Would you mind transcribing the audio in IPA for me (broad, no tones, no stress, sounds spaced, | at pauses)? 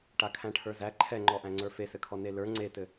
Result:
ʈ a kʰ æ̃ ʈʰ ə˞ z æ ǃʰ ɛ ŋ͡ǃ ɔ ʔ æ̃ ŋ͡ǀ ə˞ f e s ɘ kʰ ɔ n e l ə˞ ŋ͡ǀ e t ɘ